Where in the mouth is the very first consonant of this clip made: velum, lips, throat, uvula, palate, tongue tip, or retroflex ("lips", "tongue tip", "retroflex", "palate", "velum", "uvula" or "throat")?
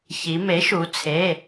palate